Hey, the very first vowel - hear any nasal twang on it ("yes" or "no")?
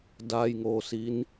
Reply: no